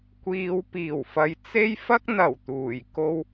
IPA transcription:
kʷ iː˨ w p iː˨˩ w f ɐ˨˧ j t͡s e˥ j f ɐ˥ k̚ n̪ ɐ˨˩ w t̪ uː˨˩ j k o˧ w

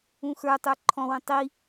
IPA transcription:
ũ x ə˞ tˤ ə˞ ǃʰ ɔ̃ w ə̃ tˤ i

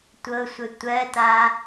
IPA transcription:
tʷ ɤ sʷ ə tʷ ɜ t a

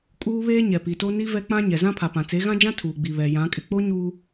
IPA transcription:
kʼ uː˦ β eː˦ ɲ ɛ˨ p i˨ t o˦ n i˦ v ɛ˦ k͡p ã˦ ɲ ɛ˨ z ã˦ pʰ a˨ p ã˨ t͡s e˨˦ ɣ ã˦ d͡ʒ ã˦ tʰ uː˨ ɡ͡b i˨ β ɛ˨ j ã˨˦ kʼ ɪ˨ k͡p o˦ ɲ uː˦

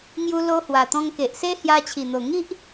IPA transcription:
ŋ j u˧ l o˧ h w a˨˩ t̪ ɔ̃˧ ŋ k e˨ ʔ s e˦ h j a˧ t͡ɕʰ i˨˩ n̪ o˨˩ ŋ i˦ ʔ

